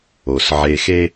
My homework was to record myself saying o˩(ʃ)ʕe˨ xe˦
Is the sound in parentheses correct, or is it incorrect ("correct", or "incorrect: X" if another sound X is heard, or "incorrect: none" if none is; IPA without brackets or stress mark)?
incorrect: s